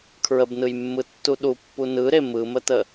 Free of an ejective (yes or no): yes